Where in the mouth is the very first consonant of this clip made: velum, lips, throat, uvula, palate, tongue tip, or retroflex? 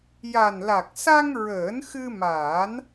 palate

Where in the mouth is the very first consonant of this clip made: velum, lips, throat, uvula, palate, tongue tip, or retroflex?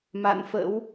lips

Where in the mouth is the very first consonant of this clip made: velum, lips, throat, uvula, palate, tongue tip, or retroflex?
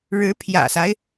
retroflex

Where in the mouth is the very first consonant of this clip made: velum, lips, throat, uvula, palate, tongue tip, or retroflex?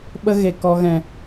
lips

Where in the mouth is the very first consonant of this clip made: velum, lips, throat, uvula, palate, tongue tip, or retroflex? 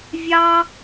lips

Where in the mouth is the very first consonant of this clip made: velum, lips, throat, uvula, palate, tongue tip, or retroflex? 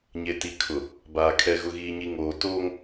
palate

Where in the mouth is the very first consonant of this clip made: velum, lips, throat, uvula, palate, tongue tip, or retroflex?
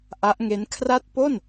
throat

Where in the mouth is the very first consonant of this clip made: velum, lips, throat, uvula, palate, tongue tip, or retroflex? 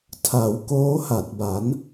tongue tip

